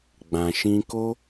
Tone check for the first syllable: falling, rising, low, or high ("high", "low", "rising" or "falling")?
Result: low